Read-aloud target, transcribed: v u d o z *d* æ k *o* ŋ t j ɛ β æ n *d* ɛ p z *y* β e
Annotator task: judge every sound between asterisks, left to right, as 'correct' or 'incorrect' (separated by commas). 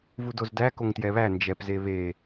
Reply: correct, correct, incorrect, incorrect